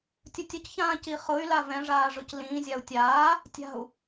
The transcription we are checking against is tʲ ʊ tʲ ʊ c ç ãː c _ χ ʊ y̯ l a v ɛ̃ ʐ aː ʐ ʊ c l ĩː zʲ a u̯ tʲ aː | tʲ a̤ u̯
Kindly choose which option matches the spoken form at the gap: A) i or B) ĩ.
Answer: A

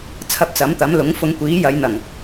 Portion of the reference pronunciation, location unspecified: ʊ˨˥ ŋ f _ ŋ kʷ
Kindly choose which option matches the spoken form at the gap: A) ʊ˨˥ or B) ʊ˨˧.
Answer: B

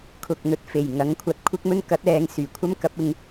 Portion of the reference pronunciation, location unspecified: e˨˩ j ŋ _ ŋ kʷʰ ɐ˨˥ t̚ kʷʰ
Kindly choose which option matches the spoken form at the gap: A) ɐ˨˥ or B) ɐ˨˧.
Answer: A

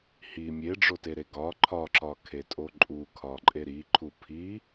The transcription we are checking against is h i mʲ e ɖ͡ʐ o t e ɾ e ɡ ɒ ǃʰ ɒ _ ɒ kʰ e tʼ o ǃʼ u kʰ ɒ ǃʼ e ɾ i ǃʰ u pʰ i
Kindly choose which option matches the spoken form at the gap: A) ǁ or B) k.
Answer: A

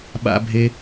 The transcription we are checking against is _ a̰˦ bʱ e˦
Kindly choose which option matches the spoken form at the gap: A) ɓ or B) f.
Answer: A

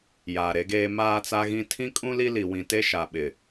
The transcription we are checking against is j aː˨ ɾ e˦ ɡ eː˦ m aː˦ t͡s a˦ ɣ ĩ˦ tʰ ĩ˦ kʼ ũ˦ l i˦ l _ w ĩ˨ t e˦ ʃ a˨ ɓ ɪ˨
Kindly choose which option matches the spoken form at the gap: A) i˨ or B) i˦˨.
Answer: A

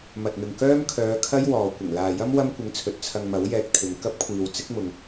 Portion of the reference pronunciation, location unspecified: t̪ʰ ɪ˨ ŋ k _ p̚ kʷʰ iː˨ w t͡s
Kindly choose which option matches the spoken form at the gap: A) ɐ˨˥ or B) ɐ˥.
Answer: B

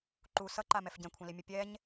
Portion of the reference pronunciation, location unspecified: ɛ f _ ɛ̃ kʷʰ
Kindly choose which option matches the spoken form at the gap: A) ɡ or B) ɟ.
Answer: B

